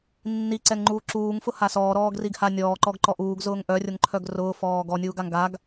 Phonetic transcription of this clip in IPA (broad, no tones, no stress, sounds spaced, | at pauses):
nː i ǀ ɛ ŋ ŋ͡ǃ uː ǁ uː ŋ f ʊ h a s ɔː ɾ ɔː ɡ r i ɡ h a nʲ ɔː ǃ ɔ ɡ ǃ ɔ ʔ uː ɡ z ʊː ŋ ʔ œ rʲ ʊ ŋ ǃʰ œ ɡ r ʊː f ɔː ɡ ɔ nʲ uː ɡ a ŋ ɡ a ɡ